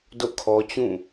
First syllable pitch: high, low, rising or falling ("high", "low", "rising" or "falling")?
falling